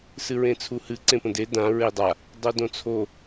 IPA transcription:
s ɨ ɹ ẽ t͡sʰ u h ɨ ǀ ẽ p ə̃ d e d ã ɹ e dˤ a | dˤ o d õ t͡sʰ o

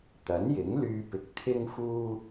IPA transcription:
t̪ ɐ˨˥ n j ɪ˨˥ ŋ l yː˧ p ɪ˨˥ k̚ t̪ʰ ɪ˥ ŋ f uː˥

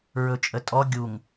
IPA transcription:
ɹ ɵ t͡ʃʼ ə tʼ ɔ ɡʲ u ŋ

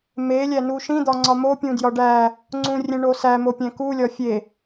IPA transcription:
m e lʲ æ n u ʃ ĩ d̪ ɒ ŋ͡ǀ ɒ m o pʲ ũ d j ɒ ɖ æ | ŋ͡ǀ ũ rʲ ẽ ɳ o s æ m o pʲ æ̃ k u lʲ ɒ fʲ e

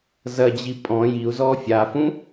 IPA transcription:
z ɐ d͡ʑ i pʼ ɔ̃ j i u̯ z ɔ fʲ a f ũ

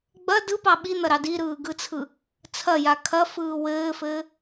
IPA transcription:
ɡ͡b ɐ d ɯ p ɑ ɓ i n̪ ɐ ɾ ɑ d i ɾ ɯː ɡ ɯ t͡sʰ ɯ | t͡sʰ ɐ j a kʰ ɐ f ɯː w ɘː f ɘː

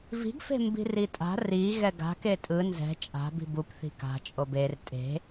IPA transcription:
v i̤ ɡ f e̤ m b i̤ r i tʼ a̤ r i ɣ ɛ ɡ a̤ k e tʼ ɯ n z ɛ̤ t͡ʃʼ a̤ b i̤ b u p θ i̤ k a̤ t͡ʃʼ o b e r tʼ e̤

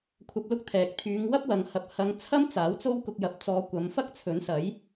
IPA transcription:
kʷʰ ɐ˧ p̚ l ʊ˥ k̚ t̪ʰ ɛː˨ k̚ t̪ʰ yː˨˧ ŋ w ɐ˥ p̚ w ɐ˨ ŋ h ɐ˨ p̚ h ɐ˨˧ ŋ t͡sʰ ɐ˥ m t͡s aː˨˥ w t͡s o˥ w k ʊ˧ k̚ j ɐ˨˥ p̚ t͡s ɔː˨˧ kʷ ɐ˨˧ m f ɐ˥ k̚ t͡sʰ ɵ˨˥ n s ɐ˨˥ j

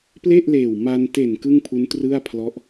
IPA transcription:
p l e˥˩ ʔ l eː˨˩ w m a˧ n t e˨˩ n k ɯ˥˩ ŋ pʰ u˦˥ n t r ɯ˥˩ a̯ pʰ l ɔ˦˥ ʔ

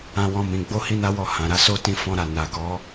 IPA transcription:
ã˦ w ɔ̃˦ m ĩ˧ ɡ͡b o˦ h i˦ n a˦ w ɔ˦˨ h ã˨ ɾ a˧ s o˦ t ĩ˧ f ɔ̃˧ ɾ a˨ n a˨ k ɔ˨˦

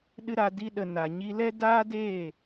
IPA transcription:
ɗ ɨ˦ ɾ a˧ d i˦ ɗ ə˧ n a˨ ɲ i˧ l ɛ˦ d aː˦ d eː˦˨

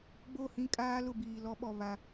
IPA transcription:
ɡ͡b o˦˨ h ĩ˦ kʼ aː˦ l ʊ˦˨ b iː˨ l ɔ˦ ɓ ɔ˨ β a˦

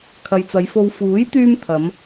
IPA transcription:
kʰ ɐ˨ j t͡s ɐ˨˧ j f o˧ w f uː˨˥ j t̪ yː˥ m t̪ʰ ɐ˨˧ m

